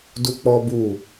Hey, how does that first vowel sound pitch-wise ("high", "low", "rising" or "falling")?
high